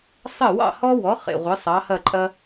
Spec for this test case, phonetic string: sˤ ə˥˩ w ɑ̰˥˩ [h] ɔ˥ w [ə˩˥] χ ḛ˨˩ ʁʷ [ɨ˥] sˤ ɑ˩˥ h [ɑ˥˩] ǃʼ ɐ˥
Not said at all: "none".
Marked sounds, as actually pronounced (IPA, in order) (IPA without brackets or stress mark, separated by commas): h, ɔ˩˥, ɨ˩˥, ɐ˥˩